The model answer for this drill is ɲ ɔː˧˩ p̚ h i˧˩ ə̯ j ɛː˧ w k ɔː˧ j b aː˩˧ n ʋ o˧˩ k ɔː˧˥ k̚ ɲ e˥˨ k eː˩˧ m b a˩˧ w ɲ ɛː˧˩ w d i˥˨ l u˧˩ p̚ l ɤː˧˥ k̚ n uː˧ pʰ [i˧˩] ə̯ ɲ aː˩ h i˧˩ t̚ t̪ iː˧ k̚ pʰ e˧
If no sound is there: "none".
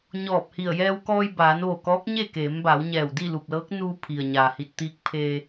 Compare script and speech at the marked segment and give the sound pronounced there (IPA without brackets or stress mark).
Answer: i˩